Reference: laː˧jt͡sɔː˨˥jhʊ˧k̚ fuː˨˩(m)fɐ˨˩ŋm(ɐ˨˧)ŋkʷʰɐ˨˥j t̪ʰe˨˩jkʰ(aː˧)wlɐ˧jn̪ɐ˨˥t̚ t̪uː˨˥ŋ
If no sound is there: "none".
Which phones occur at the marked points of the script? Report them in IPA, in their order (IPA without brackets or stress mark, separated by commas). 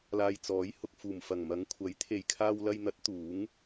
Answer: m, ɐ˨˧, aː˧